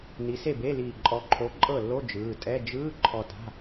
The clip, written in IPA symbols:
n i˨˦ s e˥˩ b e˧˥˧ l iː˧˩ ǃʼ ɔ˨˦ ǃʰ o˨˦ ǃʼ ɤ˥˩ lː o˧˥˧ d͡ʒ ɯː˩˧˩ tʼ ɛ˧˥˧ d͡ʒ ɯː˧˥˧ ǃʰ ɔ˧˩ t a̤˧˥˧

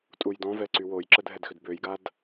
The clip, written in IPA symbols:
tʼ u j d ɔ̃ v ɛ ǀ y w o j ǁ ə dʱ ɛ d x ʏ d b ø j ɡ a d

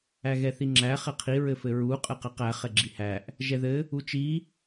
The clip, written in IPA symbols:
æ ɣ ɛ θ i ŋ͡ǁ æ χ ɛ qʰ i ɹ ɘ f ɘ ɹ u qʼ ɘ q æ q æ χ ɛ ɡ͡ǁ i h æ ʔ | ʒ ɛ ð ɘ | u t͡ʃ i

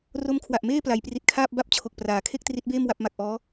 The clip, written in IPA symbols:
r o˦˥ m kʰ w a˨˩ ʔ m eː˥˩ p l a˩˦ j p r i˨˩ t̚ kʰ aː˥˩ p̚ b a˥˩ p̚ t͡ɕʰ o˨˩ k̚ p r aː˩˦ kʰ e˥˩ k̚ t r i˦˥ t̚ b eː˥˩ m w a˦˥ p̚ m a˨˩ k̚ ʔ ɔː˦˥

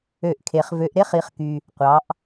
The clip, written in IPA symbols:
ø˧˩˧ ʔ kʰ e˩˧ χ v ø˩˧ ʔ ɾ e˥˩ χ i˩˧ χ k y˩ | qʷ ɑ˩˧ ʔ

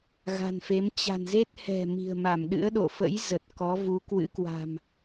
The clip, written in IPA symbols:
ɣ a̤˨˩ n f e˨˦ m t͡ɕ a̤˨˩ n z e˦˥ t̚ h ɛ̤˨˩ m i̤˨˩ ə̯ m a˧˩ m ɗ ɨ̰˧˥ ə̯ ɗ o̰˧˨ f ə̰˧˥ j z ə˨˩ t̚ k ɔ˨˦ v u˨˦ k w ɨ̰˧˥ k w a̤˨˩ m

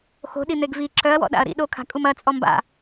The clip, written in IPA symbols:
x o̤ ɗ i n̪ e ɡ v i ǁʰ œ ɐ̯ w ɔ̰ ɗ a̰ ɐ̯ ɾ ḭ ɗ o kʰ a̤ kʼ u m ɐ t͡sʼ ɔ m b a̰

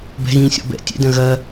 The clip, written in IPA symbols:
b ɛ̤ ɣ ĩː sʲ ɔ̰ b ɛ̰ tʲ ɛ̰ d ɐ̃ ɣ ɐ

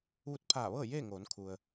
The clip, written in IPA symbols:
ʋ u˧˥ t̚ pʰ aː˧˩ ʋ ɤː˥˨ j eː˥˨ ŋ oː˩˧ n kʰ u˩ ə̯

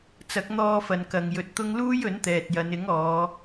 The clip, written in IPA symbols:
t͡s ɐ˨˥ k̚ n̪ ɔː˧ f ɐ˨ n k ɐ˨ ŋ j ɵ˨˥ t̚ t̪ ʊ˥ ŋ l uː˥ j ɵ˨˥ n t̪ ɛː˨ t̚ j ɐ˨˧ n ɪ˨˥ ŋ ɔː˨˧

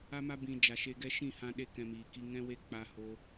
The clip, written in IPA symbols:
a˦ m a˦ b ĩ˨ d͡ʒ a˨ ʃ e˧ ɡ ɛ˦ ʃ ĩ˦˨ h ã˧ ɗ e˧ k ɛ̃˧ m iː˨ k i˦ ŋ ɛ̃˦ w e˦ k͡p a˦ h o˦

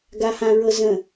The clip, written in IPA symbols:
ɡ a h ã ɹ ɤ z ə̃

